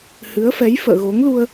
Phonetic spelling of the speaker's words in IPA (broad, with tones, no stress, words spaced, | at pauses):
hɨ˨˦ə̯fɛ˨˦j fə̰ː˧˨ɣo˨˦ŋlu˧ə̯